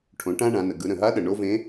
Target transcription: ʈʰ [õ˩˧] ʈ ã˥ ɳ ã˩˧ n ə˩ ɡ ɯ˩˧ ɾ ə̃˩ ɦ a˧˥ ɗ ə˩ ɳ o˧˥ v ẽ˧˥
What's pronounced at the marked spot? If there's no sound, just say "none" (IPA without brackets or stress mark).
õ˩˧